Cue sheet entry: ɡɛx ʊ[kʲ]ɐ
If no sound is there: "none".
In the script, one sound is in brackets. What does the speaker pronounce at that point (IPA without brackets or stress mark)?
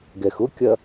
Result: kʲ